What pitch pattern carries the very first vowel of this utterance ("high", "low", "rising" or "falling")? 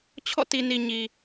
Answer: falling